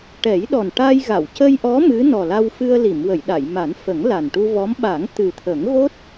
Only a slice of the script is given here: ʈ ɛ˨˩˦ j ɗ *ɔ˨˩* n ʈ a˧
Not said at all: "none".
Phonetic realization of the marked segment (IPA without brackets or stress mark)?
ɔ˨˩